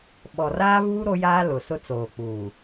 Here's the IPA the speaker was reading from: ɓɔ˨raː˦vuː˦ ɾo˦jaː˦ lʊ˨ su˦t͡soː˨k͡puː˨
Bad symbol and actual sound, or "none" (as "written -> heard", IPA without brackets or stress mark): u˦ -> ʊ˦